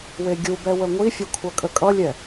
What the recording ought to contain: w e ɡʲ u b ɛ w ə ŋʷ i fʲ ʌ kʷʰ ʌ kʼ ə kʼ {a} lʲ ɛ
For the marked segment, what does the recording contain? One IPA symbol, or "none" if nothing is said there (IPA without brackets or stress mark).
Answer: ʌ